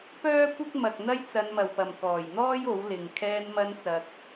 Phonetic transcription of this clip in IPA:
pœː˥kʷɪ˥k̚mɐ˨k̚ n̪ɐ˥jt͡sɐ˨˧nmɐ˨˩wpɐ˨˩m kɔː˨˩jn̪ɔː˥j o˨˥wlɪ˨ŋ kʰɛː˧nmɐ˧nt͡sɐ˨k̚

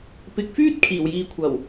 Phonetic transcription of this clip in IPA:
pɪ˨˥k̚fyː˥t̚ kʰiː˨˩wjiː˨ kʷʰɐ˨˩w

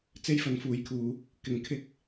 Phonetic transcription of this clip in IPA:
t͡se˥jfɐ˨˥nfuː˨˥jkʰuː˨˧ | kɪ˨ŋkʰɪ˥k̚

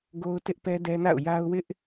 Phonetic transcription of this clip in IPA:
ɡo˦ʊ̯tɪ˦ʔ pɛ˦dɛ˦na̰˦˨ʊ̯ ja˦ʊ̯wɪ˦ʔ

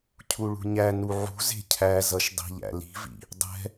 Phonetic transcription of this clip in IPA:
cʰuɭṳɲæ nuʕṳ ze̤cʰæ zʌʃdˤi̤ʎæ̰ li̤vḭ | dˤɛ̤

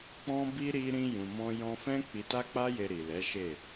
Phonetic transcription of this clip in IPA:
k͡pɔ̃˦bi˦ ɾi˧ ɾĩ˧jũ˨mɔ̃˧ jɔ̃˧fɛ̃˦ k͡pi˧ta˦k͡pa˦je˧ ɾi˨lɛ˨˦ʃe˦˨

